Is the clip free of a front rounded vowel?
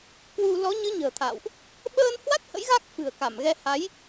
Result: yes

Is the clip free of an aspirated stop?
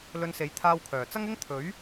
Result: no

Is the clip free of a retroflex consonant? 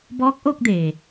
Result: yes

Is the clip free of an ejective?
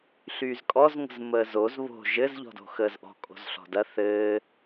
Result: no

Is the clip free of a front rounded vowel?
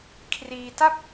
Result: yes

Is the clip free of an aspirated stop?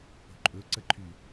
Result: no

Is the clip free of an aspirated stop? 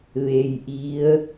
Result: yes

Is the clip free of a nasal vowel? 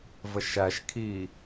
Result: yes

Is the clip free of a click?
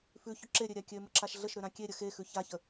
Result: no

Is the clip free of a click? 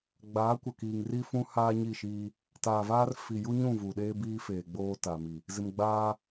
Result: yes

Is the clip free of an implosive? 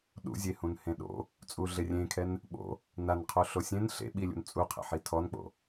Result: no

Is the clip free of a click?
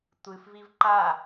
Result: no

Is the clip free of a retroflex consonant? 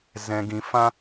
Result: yes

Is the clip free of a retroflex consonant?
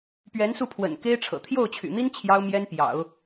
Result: no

